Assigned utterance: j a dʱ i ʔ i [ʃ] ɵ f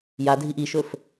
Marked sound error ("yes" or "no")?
no